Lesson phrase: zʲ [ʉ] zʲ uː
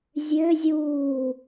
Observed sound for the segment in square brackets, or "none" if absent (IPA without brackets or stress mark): ø